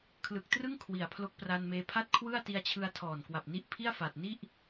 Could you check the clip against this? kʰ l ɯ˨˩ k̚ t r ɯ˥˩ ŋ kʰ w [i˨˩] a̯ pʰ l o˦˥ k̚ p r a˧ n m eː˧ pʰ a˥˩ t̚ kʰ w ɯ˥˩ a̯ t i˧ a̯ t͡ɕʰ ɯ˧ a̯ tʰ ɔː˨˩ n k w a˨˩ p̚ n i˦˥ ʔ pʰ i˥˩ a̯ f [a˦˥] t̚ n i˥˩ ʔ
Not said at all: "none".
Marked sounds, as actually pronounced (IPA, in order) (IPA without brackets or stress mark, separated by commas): i˨˩, a˨˩